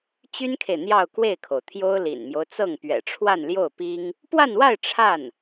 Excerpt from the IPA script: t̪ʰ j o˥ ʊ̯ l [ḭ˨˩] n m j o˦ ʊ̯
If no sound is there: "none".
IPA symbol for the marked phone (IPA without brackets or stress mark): ḭ˨˩